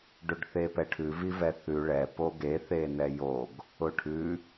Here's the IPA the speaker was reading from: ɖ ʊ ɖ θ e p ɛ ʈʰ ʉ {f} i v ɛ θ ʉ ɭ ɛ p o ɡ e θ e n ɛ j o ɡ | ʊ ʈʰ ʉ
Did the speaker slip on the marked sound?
yes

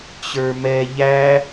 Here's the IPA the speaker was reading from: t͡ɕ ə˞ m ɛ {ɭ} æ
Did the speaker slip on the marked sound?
yes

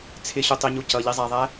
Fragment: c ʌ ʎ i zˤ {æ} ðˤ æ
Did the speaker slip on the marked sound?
no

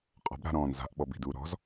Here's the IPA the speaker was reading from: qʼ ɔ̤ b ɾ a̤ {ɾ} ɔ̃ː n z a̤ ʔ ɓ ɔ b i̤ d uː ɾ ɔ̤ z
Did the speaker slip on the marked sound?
no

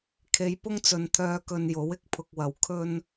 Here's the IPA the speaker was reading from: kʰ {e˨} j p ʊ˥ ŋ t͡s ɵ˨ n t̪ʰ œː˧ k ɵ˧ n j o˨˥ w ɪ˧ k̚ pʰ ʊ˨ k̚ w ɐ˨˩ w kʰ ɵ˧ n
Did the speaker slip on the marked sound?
yes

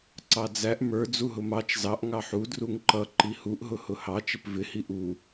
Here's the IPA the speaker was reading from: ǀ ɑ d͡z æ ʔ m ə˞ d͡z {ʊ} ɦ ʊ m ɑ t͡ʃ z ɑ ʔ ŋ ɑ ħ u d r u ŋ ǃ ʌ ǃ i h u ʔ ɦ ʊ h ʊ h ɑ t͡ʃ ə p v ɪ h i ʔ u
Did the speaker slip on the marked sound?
yes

